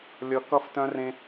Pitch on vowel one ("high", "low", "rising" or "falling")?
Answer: low